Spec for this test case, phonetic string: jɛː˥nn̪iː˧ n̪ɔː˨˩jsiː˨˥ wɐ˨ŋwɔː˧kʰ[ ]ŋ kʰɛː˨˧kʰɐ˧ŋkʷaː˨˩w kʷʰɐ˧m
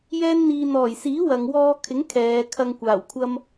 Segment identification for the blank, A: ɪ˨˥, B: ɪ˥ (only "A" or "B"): A